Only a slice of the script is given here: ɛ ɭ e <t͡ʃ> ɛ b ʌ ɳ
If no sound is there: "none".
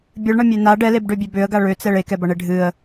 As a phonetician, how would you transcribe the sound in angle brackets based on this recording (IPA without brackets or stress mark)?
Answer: k